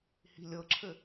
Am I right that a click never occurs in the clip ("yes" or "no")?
no